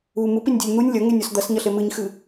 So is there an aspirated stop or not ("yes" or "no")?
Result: no